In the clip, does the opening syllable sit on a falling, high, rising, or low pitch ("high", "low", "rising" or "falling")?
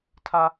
high